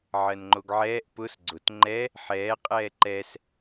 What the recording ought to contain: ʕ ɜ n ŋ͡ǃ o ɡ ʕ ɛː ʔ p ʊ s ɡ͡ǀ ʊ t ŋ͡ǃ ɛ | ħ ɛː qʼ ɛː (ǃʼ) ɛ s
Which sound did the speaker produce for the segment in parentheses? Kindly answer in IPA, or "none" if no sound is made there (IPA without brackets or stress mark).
ǃ